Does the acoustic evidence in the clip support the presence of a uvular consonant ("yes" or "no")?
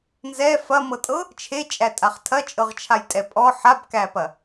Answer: yes